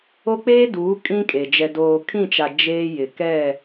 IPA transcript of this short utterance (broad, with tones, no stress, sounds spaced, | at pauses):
o˦ k͡p eː˦ d uː˨˦ kʼ ĩ˦ kʼ e˨ d͡ʒ ɛ˨ d oː˨ kʰ ĩ˦˨ t͡ʃ a˨ d͡ʒ eː˦ j ɪ˨ k ɛ˦˨